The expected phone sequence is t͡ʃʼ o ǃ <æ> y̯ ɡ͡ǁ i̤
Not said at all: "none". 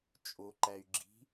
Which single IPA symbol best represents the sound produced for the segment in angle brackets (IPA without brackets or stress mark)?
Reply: æ